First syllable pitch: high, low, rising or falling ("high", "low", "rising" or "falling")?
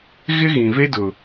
high